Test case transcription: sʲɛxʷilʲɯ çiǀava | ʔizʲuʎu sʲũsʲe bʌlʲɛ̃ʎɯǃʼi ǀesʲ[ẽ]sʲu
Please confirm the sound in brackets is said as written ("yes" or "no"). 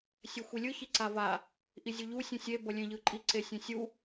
yes